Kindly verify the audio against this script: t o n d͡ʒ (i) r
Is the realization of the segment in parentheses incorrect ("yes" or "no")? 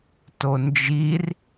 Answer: no